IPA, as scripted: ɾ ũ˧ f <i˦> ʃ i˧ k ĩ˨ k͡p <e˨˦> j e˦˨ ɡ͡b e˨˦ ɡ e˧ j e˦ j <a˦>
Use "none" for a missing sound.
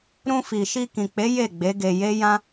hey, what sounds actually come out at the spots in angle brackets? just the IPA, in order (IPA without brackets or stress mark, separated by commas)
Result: i˨, e˨˦, ã˦